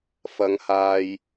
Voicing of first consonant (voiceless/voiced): voiceless